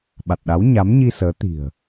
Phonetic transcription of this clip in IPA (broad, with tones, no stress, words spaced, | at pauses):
ɓa˨˩t̚ɗa˨˦wɲa˨˦mɲi˧ səː˨˦ t̪i̤˨˩ə̯